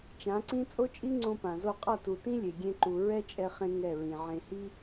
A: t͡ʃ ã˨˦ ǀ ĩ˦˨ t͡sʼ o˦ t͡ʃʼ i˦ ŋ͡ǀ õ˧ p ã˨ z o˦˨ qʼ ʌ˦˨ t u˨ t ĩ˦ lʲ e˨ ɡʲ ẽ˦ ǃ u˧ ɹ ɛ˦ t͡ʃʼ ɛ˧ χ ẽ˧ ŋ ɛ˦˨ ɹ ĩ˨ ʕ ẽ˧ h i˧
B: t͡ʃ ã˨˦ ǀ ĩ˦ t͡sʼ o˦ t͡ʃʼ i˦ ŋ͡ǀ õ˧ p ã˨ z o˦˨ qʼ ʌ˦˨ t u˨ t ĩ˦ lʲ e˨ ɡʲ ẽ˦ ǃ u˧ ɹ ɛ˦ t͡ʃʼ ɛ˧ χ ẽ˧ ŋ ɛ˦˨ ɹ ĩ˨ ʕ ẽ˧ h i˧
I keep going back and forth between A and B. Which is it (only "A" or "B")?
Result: B